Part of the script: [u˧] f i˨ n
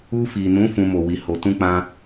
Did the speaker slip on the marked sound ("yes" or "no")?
no